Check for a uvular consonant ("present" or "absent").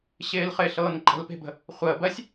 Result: present